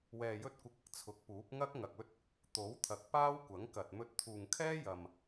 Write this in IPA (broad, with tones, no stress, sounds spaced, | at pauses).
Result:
w ɛː˧ j ɵ˥ t̚ kʷ ɪ˧ k̚ ɪ˧ k̚ t͡sʰ ʊ˨˥ k̚ p uː˨˥ p̚ ŋ ɐ˥ k̚ ŋ ɐ˨ k̚ ɵ˥ t̚ | t̪ o˨˥ w t̪ʰ ɐ˨ k̚ p aː˥ w kʷ ɐ˨˥ ŋ k ɐ˨ t̚ m ɵ˧ t̚ t̪ʰ uː˨ ŋ kʰ ɛː˥ j ɐ˨ m